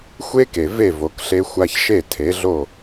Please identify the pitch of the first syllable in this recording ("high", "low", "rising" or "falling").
high